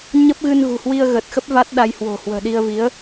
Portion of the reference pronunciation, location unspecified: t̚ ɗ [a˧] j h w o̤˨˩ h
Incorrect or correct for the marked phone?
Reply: correct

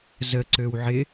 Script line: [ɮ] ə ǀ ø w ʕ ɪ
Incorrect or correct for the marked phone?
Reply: incorrect: z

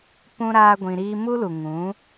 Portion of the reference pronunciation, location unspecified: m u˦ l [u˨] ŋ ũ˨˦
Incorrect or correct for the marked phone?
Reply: correct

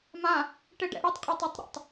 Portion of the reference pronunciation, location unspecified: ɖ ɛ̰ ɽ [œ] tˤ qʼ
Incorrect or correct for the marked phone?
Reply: correct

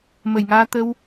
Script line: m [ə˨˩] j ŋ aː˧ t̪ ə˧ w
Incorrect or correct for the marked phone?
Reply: correct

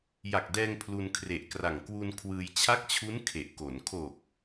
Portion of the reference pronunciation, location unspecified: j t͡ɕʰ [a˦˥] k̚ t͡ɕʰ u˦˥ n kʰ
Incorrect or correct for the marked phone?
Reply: correct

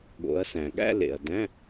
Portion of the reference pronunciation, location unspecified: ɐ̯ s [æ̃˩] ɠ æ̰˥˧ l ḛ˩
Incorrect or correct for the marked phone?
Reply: correct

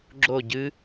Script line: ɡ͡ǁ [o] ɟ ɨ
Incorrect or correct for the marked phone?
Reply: correct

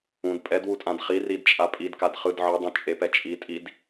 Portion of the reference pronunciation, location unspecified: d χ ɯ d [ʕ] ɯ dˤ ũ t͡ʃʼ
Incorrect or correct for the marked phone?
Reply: correct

